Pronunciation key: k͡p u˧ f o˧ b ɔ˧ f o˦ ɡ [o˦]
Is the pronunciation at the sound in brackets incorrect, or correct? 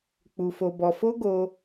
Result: correct